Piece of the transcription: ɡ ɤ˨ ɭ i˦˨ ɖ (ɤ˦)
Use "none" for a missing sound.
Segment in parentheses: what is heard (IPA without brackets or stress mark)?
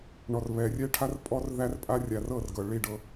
ɤ˦